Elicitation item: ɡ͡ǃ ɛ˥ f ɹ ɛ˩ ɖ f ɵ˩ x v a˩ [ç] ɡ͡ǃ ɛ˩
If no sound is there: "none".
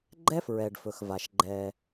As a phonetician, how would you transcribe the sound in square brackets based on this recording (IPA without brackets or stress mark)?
ʃ